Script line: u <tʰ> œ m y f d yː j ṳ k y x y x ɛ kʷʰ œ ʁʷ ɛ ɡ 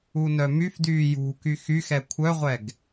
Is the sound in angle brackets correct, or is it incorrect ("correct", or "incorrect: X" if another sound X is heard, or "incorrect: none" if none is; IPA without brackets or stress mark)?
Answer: incorrect: n